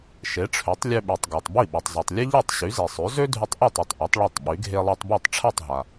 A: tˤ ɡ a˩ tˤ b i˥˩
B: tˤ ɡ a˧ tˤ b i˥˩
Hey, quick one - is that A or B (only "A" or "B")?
A